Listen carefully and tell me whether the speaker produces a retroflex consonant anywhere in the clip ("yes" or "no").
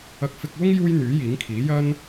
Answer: no